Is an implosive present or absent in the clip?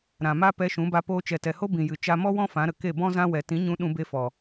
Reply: present